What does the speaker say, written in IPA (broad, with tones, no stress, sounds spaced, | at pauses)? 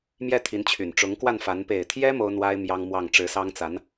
m j ɛ˥˩ t̪ʰ i˧˥ n t͡ɕʰ y˨˩ n ʈ͡ʂ ʊ˧˥ ŋ k w a˥˩ n f a˧˥ n p e˨˩ ɪ̯ t̪ʰ j ɛ˥ m o˥ ʊ̯ n̪ w a˥ ɪ̯ m j ɑ˥ ŋ m w ɑ˥˩ ŋ ʈ͡ʂ ɻ̩˧˥ s ɑ˥ ŋ t͡s a˧˥ n